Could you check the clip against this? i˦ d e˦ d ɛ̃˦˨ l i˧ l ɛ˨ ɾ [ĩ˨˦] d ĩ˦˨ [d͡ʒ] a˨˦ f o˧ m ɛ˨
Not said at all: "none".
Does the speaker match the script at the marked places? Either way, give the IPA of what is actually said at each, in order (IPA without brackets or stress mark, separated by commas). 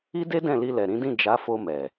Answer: ĩ˨˦, d͡ʒ